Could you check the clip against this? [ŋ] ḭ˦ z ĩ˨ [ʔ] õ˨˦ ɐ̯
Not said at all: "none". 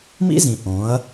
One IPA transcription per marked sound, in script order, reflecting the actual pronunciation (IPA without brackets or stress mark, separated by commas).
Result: m, ʔ